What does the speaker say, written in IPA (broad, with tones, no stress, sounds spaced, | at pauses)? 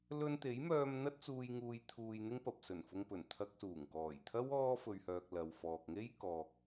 l ɵ˧ n t̪ e˨˥ j m œː˧ m n̪ ɐ˥ t̚ t͡s uː˧ j ŋ uː˧ j t̪ʰ uː˧ j n̪ ɪ˥ ŋ p ɐ˨ p̚ s ɵ˨˩ n f ʊ˧ ŋ p ɵ˨˩ n t̪ʰ ɐ˧ k̚ s uː˨˩ ŋ k ɔː˨˩ j t̪ʰ ɐ˥ w ɔː˥ f ɵ˨ ɥ h œː˨ k̚ l ɐ˨ w f ɔː˨ k̚ ŋ e˥ j k ɔː˨ k̚